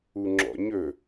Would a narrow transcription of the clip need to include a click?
yes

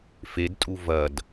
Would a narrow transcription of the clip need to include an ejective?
yes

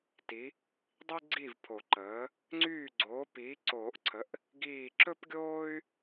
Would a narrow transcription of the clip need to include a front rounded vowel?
yes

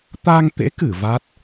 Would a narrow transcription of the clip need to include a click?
no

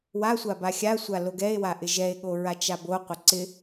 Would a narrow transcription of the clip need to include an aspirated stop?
no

